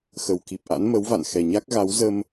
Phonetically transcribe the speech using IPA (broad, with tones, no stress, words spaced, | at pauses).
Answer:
xə˨˩wki˨˩p̚ʔa̰˧˥n mə˨˦wva̰˧˨nxɛ˨˩ɲa˦˥k̚ ɣa˨˦w zə˧m